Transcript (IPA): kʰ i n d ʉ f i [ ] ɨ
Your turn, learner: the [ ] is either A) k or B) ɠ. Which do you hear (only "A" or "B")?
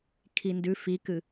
A